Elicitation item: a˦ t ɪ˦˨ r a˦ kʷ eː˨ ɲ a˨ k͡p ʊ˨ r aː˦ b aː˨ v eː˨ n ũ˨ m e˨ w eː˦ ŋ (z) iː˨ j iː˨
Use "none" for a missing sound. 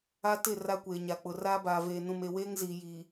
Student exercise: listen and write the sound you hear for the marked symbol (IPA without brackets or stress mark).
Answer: z